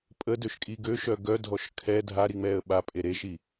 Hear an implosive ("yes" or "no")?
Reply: yes